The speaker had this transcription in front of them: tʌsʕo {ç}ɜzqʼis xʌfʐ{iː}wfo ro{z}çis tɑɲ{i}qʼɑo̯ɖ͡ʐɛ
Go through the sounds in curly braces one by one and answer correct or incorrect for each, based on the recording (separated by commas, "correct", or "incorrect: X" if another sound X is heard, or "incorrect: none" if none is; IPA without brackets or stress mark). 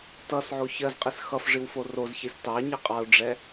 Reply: correct, incorrect: i, correct, correct